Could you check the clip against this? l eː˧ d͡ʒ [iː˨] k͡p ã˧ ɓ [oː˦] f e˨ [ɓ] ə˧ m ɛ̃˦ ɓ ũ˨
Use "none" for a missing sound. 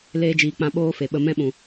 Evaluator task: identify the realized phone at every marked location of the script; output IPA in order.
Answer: iː˨, oː˦, ɓ

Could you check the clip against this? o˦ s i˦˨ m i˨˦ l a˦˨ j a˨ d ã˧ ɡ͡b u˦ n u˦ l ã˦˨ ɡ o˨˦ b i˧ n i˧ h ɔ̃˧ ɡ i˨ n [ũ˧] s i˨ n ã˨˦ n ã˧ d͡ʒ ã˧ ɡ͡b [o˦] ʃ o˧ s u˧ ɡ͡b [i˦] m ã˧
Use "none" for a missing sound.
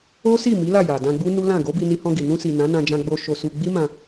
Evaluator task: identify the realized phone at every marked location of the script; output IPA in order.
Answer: ũ˧, o˧, i˦

